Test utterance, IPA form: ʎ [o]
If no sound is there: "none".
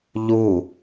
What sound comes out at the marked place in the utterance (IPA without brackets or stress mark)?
u